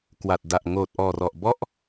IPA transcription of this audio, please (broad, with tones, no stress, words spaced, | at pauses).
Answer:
kwa˨˩t̚da˨˩ʔ ŋoː˨˩t̚ʔɔː˨˩rɔ˨˩ʔ bɔ˥˩ʔ